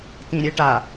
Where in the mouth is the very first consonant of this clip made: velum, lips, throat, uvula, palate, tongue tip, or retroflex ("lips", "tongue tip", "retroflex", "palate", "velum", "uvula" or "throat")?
tongue tip